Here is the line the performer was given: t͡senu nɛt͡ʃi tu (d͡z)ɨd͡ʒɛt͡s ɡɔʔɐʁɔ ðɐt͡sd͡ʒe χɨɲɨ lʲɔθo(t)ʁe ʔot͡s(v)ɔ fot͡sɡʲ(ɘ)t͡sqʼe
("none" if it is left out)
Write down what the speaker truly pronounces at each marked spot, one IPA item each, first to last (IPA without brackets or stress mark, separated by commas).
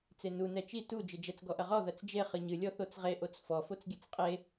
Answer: d͡ʒ, t͡s, f, ɘ